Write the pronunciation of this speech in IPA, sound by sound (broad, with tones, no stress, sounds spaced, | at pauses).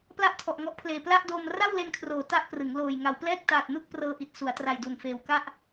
p l a˥˩ ʔ tʰ ɔ˨˩ ʔ ŋ ɔ˦˥ ʔ pʰ l eː˨˩ p l a˥˩ ʔ d oː˧ m r a˥˩ w l e˧ n kʰ r oː˩˦ t a˥˩ ʔ p r ɯ˩˦ ŋ l oː˨˩ j ŋ a˩˦ w p l ɛː˥˩ k̚ t aː˨˩ t̚ n u˥˩ k̚ p r ɤː˧ ʔ i˨˩ t̚ s u˩˦ a̯ t r a˨˩ j d u˨˩ n f eː˨˩ w k a˥˩ ʔ